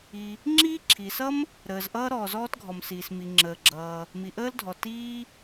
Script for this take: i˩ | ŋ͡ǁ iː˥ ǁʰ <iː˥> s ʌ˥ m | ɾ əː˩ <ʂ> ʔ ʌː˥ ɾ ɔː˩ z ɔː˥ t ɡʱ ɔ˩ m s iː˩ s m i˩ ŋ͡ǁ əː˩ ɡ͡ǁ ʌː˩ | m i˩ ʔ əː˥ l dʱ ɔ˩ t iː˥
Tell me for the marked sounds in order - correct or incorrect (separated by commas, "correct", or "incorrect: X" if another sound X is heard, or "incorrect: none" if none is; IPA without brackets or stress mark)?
incorrect: iː˩, incorrect: z